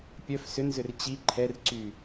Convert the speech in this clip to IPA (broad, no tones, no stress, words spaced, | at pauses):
pʲœf sʏnzʏr t͡ɕi ǃʰɛrǀy